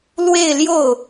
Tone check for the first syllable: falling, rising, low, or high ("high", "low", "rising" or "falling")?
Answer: falling